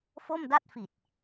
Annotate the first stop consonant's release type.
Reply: plain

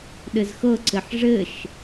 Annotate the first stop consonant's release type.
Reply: implosive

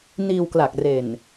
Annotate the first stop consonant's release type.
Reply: plain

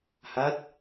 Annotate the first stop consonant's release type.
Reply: plain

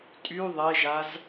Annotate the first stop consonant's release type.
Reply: ejective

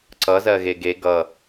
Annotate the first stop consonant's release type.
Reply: click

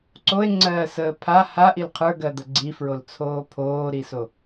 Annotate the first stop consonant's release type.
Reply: click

